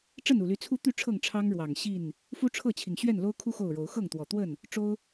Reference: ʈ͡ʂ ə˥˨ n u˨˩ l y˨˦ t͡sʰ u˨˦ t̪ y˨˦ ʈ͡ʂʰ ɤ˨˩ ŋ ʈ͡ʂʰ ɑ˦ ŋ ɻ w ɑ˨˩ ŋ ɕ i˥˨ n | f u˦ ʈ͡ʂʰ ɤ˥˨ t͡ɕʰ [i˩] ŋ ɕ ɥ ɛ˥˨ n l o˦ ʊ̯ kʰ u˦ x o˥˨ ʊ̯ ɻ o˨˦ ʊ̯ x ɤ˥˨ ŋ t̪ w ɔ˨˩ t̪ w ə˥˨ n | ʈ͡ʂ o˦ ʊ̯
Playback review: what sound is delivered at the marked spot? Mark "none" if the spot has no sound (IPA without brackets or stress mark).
i˩